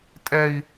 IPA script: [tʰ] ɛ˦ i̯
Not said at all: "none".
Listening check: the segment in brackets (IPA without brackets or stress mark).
tʼ